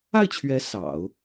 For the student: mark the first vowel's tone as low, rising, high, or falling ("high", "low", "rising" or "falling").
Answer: falling